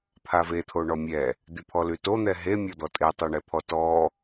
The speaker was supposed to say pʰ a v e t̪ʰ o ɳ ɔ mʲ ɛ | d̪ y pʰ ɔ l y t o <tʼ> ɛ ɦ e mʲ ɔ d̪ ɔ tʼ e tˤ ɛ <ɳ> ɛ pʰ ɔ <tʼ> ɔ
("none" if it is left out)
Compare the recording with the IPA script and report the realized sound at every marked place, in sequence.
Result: n̪, ɳ, t

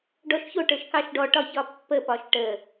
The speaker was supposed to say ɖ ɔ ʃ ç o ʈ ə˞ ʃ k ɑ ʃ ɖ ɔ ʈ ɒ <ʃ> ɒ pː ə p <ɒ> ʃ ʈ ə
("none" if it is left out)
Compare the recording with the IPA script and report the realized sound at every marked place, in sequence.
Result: ç, ɒ

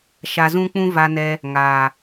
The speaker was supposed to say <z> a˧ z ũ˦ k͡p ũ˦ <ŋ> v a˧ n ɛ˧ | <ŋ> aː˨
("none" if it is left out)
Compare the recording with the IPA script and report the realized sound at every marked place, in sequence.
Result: ʃ, none, ŋ

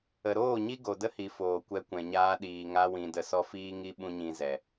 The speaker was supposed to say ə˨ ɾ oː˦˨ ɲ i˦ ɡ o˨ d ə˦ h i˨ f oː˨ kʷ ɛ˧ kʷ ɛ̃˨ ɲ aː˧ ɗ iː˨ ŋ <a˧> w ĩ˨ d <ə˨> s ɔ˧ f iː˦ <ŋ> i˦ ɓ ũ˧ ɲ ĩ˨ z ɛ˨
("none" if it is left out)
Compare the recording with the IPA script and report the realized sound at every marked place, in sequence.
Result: a˧, ə˨, ŋ

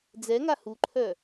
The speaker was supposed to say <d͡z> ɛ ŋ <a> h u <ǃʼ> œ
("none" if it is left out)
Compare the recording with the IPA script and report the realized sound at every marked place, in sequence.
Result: d͡z, a, ǃʰ

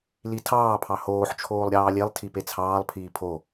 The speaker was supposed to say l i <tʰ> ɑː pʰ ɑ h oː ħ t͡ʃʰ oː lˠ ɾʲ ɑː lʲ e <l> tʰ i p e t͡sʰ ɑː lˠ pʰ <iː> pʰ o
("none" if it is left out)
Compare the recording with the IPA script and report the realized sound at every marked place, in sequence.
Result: tʰ, lˠ, iː

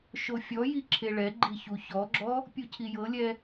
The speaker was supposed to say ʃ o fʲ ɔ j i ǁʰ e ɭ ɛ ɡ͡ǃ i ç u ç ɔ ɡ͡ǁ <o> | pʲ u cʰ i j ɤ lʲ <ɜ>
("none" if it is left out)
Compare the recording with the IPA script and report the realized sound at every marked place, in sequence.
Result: ɔ, ɛ

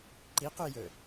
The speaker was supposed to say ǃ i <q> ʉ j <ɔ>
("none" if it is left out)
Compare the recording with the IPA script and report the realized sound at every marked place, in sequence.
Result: q, ɵ

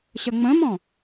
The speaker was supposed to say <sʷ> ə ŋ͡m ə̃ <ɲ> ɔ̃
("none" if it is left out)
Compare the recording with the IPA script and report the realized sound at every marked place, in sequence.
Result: ɕ, m

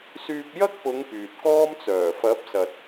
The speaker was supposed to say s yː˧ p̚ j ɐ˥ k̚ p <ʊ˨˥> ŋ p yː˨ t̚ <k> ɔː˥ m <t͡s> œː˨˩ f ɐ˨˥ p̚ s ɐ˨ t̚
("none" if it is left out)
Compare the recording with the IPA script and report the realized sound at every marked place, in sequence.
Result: ʊ˨˧, k, t͡s

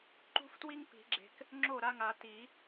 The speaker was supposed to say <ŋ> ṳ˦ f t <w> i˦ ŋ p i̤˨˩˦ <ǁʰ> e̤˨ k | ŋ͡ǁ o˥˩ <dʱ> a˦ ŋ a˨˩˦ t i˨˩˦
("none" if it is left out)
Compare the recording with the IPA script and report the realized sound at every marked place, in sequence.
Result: ǃ, w, ɡ͡ǁ, ɾ

